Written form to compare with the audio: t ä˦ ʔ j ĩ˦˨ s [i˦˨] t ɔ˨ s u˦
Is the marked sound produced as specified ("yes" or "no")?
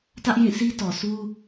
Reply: no